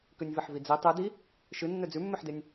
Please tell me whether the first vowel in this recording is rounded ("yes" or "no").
yes